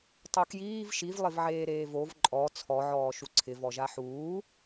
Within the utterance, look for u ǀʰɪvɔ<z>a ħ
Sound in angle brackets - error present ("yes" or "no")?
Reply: yes